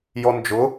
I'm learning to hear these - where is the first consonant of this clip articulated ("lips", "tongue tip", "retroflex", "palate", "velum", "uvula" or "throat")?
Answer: palate